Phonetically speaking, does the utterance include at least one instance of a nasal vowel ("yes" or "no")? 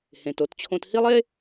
yes